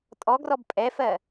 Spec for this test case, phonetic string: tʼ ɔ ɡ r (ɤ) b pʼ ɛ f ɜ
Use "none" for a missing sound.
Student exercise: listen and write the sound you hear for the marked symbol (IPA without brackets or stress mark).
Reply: ɔ